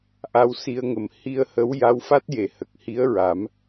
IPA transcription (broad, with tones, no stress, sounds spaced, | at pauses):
ʔ a˧ w s i˧ ə̯ ŋ ə˨˩ m h i˧ ə̯ h ə˧˥ w j a˧˥ w f a˦˥ t̚ j e˨˩˨ h ə˨˩ k̚ h i˧˥ ə̯ ɹ a˨˩˦ m